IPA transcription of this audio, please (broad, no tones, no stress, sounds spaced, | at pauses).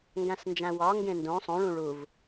ŋ ɡ æ̃ s n d͡ʒ æ̃ w ɒ ŋ ɡ ẽ n d õ sˤ õ ɭ ũ ɭ u v